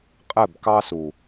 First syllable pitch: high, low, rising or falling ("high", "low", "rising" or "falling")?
falling